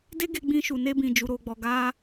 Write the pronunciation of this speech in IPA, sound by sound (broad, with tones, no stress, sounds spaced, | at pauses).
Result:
d e˦ ɡ e˧ ɡ͡b ĩ˧ ʃ u˨ n e˧ b ĩ˨ d͡ʒ u˧ ɾ o˧ ɡ͡b ɔ˧ ɡ a˦